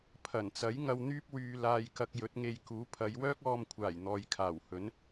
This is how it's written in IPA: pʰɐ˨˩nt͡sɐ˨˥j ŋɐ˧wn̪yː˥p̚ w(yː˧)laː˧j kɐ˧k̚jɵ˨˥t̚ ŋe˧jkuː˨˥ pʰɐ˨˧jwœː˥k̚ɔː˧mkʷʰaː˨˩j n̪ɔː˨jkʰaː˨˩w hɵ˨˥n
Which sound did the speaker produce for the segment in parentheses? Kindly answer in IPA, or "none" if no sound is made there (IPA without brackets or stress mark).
yː˧